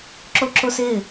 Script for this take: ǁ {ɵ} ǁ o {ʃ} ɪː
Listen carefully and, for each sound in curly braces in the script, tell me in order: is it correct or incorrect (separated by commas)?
incorrect, incorrect